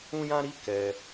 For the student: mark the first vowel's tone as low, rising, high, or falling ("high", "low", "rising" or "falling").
high